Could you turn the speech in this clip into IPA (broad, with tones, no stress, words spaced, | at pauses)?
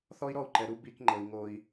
θɔ˥i̯ɾɔ˥˧u̯ǃɛ˨ɾu˥˧ bi˧˥˧kŋ͡ǃɤ˨i̯ ŋo˨i̯